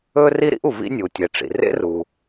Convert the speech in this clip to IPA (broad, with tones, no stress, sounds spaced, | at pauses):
ɵ˥ r i˥ ɾ ḭ˥ ʔ u˩ v ḭ˥ nʲ u˩ tʲ e˩ ʈ͡ʂ ḭ˩ r ḛ˥ r u˩